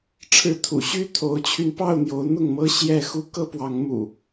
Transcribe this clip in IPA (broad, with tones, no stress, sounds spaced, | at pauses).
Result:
ʈ͡ʂʰ ɻ̩˨˦ t̪ʰ ṵ˨˩ ɕ y˦ t̪ʰ o˨˦ ʊ̯ t͡ɕʰ y˧ n p ɑ˥˨ ʊ̯ n̪ j o˨˦ ʊ̯ n̪ ʊ˥˨ ŋ m ɤ˦ ɕ j ɛ˥˨ x u˦ k ɤ˦ p w ɑ˨˦ ŋ m ṵ˨˩